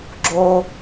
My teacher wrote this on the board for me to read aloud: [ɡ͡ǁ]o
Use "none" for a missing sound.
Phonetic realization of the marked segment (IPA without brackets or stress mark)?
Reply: ɡ͡ǁ